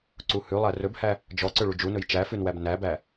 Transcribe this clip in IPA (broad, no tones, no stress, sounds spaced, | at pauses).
ǀ u h ʉ lˠ æ r ɵ b h æ | d͡ʒ ɔ ǀ ø ɭ u d͡ʒ u n ɵ j t͡ʃ æ f ʉ n w æ b n æ b æ